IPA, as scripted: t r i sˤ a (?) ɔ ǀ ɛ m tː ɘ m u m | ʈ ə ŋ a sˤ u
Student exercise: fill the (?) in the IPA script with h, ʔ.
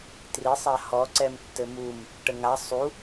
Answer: h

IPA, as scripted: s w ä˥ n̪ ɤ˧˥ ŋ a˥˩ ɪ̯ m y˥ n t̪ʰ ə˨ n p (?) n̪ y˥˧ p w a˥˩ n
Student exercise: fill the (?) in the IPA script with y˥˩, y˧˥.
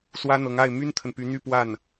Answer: y˧˥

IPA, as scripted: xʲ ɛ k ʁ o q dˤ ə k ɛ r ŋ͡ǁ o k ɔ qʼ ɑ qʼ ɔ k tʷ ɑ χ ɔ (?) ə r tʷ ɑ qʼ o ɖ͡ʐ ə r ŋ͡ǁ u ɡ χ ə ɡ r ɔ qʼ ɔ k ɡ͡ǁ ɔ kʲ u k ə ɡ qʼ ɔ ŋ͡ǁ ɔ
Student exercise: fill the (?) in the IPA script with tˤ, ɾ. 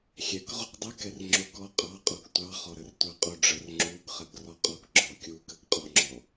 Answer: ɾ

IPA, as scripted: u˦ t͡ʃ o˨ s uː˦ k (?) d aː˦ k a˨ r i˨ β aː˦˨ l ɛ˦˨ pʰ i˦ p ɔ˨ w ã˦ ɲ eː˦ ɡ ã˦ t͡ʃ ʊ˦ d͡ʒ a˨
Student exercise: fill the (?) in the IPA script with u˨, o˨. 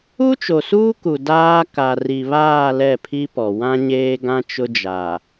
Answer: u˨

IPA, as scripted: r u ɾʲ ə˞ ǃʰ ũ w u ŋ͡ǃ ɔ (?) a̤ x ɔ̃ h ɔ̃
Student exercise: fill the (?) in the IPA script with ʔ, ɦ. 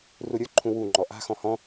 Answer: ʔ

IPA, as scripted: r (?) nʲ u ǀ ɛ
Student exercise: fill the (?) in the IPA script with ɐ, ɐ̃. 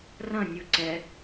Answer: ɐ̃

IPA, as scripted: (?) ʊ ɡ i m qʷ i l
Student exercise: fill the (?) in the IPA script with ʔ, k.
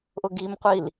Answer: ʔ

